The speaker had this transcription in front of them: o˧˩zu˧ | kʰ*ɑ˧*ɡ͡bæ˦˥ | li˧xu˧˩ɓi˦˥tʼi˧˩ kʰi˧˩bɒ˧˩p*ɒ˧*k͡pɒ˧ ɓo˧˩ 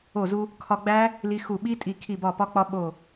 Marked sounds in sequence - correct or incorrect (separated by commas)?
incorrect, correct